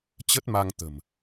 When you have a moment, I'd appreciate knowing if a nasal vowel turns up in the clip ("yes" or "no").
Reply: no